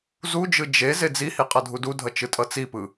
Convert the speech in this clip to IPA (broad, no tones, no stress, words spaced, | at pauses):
zud͡ʒɯ d͡ʒe zed͡zihi qʼʌdʱududʱʌ t͡ʃɯtʼʌt͡sipɯ